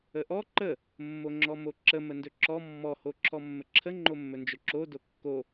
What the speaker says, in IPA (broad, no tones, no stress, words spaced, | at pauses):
əʔɔ ǃə | mːoŋ͡ǁɔmoǁə məndɵǁɔ mːɔ hoǁʰɔmːəǁʰə ŋ͡ǃomːɵnd͡ʒɵǁo dokːo